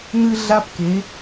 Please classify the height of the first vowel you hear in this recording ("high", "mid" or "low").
high